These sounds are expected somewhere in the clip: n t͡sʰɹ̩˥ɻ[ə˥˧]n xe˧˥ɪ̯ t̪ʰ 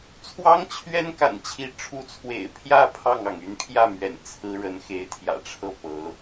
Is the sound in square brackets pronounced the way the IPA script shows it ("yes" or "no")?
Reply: no